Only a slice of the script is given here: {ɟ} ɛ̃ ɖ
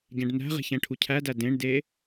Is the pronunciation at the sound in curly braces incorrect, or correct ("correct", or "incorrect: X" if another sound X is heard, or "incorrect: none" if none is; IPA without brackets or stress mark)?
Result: correct